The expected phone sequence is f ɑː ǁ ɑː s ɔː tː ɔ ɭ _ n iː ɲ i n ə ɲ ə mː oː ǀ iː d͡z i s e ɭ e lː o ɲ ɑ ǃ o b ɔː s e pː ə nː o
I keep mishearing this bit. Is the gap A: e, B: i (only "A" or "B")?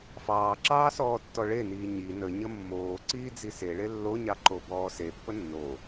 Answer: A